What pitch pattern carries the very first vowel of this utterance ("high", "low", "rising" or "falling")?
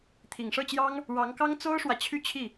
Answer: low